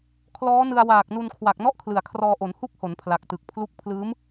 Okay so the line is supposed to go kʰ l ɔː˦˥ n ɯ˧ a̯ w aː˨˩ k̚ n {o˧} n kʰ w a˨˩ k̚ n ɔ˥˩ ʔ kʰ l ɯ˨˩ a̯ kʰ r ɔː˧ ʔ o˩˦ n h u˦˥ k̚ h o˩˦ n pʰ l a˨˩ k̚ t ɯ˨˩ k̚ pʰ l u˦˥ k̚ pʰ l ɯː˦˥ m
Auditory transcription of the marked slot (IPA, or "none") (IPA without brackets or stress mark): u˧